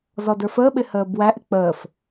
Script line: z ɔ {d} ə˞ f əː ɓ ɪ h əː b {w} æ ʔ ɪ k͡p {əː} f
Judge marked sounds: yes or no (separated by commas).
yes, yes, yes